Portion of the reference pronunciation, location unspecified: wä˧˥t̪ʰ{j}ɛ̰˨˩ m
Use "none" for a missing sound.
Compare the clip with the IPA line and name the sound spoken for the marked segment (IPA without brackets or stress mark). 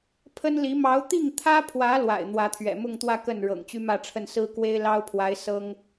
ɥ